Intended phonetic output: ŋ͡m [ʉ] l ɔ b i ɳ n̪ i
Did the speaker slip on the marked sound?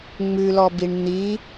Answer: no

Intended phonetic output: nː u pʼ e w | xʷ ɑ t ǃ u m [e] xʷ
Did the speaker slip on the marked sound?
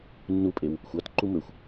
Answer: yes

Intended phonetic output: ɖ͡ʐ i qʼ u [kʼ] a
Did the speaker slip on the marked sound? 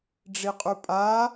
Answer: yes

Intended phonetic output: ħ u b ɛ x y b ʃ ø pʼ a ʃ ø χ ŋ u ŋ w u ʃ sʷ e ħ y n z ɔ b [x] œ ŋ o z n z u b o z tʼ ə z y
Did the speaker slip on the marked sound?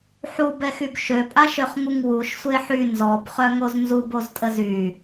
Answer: yes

